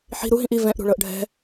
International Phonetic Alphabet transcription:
ħi̤ ɾuɦĩʔ i vɛ̃ʔɾṳɭɤʔ ɖʱɛ̤

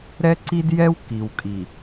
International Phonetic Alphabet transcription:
ɾɛ˦ǀi˦djɛ˦w ki˨wkʼi˨

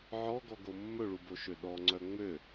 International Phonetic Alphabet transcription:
ʕɔɡɔɡo mːɵɭuboʃø ɗɔŋ͡ǀœ ŋ͡mø

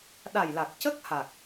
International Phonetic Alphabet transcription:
ɗa˨˩jla˨˩k̚cə˦˥k̚ha˨˩k̚

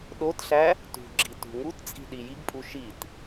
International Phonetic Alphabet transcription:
ɗotɬæ | tṳɡ͡ǁi tṳŋutt͡sʼi̤ ɗijiɡpʼu ʃit

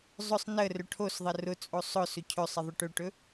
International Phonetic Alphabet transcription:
zˤʊsˤ nə rɵʈʰosðˤə rʊt͡sʼo sˤʊ sɵcʰɵsˤə ðˤʊʈɵʈɵ

